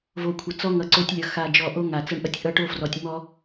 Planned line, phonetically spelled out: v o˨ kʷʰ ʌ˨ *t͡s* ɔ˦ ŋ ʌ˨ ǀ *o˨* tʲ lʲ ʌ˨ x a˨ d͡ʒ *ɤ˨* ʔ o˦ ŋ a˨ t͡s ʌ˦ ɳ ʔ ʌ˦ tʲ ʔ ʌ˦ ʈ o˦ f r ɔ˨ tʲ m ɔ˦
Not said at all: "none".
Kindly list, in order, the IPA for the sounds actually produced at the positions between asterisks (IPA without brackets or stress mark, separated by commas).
t͡s, o˦, ɔ˨